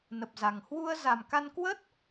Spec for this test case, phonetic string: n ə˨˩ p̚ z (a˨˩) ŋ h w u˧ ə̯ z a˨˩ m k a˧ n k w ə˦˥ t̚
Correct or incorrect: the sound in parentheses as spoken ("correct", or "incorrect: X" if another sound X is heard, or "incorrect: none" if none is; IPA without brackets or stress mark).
correct